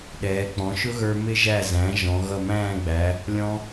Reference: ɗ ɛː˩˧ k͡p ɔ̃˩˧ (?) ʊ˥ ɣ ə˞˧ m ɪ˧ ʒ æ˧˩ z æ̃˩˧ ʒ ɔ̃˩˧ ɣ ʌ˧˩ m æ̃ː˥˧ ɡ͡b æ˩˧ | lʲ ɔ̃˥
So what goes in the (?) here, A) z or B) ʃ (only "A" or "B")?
B